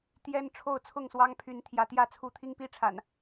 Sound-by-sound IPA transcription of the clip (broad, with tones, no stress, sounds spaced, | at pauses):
t̪ j ɛ˦ n ʈ͡ʂʰ o˥˨ ʊ̯ t͡sʰ ʊ˥˨ ŋ s w ɑ˦ ŋ pʰ y˨˦ n t̪ʰ j ä˨˦ t̪ j ä˥˨ t͡sʰ u˦ t̪ʰ i˦ ŋ p i˦ ʈ͡ʂʰ a̰˨˩ n